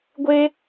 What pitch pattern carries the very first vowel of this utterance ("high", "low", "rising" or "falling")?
high